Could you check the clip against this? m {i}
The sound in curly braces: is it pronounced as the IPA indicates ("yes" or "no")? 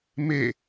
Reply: no